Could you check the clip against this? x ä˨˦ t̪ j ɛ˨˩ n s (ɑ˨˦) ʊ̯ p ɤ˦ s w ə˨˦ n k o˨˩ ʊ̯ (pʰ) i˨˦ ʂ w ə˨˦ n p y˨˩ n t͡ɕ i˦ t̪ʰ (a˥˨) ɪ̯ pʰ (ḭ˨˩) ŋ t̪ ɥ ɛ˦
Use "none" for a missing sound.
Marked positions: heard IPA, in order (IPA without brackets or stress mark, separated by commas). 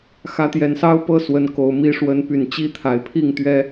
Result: ɑ˦, m, a˨˩, i˥˨